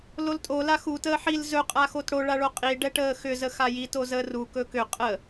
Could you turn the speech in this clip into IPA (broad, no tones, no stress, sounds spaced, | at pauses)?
l o l tʼ o l a x u t əː ħ i l z ɵ qʼ a x o t ɽ o ɭ a ɭ o qʼ i ɖ ɛ ʈ əː x ʏ z ə x a j i t o z əː r u k ɵ k ʏ qʼ ə